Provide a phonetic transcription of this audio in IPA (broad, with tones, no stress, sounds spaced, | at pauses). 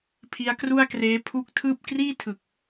pʰ i˦˥ a̯ k r u˥˩ a̯ k r eː˦˥ pʰ u˦˥ k̚ tʰ ɯː˥˩ p̚ k r iː˥˩ tʰ ɯ˨˩ k̚